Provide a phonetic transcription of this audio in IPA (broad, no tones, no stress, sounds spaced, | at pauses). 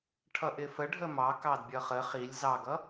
ʈʰ ʌ ʔ ɪ f ə ɖʱ ə m ɑ k ɑ d bʲ ʌ χ ə χ i lʲ z ɑ ɡ ʌ